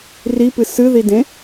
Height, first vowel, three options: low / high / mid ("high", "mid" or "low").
high